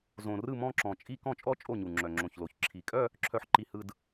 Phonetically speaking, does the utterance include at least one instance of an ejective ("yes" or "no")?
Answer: yes